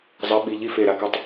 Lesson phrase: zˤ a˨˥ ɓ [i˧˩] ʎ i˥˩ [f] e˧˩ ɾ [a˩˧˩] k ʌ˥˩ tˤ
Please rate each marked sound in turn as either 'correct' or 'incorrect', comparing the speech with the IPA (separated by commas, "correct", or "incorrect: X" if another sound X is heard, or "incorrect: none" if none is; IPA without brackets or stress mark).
incorrect: i˩˧˩, correct, correct